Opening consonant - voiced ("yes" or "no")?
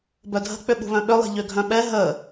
yes